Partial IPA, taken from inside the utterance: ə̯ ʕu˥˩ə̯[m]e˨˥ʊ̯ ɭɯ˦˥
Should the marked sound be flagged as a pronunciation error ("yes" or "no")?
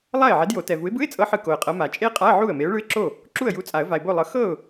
no